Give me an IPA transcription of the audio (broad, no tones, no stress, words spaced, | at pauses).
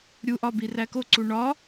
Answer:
ɾʲuʔɒ birækoǀu ɳɒ